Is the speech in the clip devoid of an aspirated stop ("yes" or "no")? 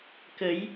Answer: yes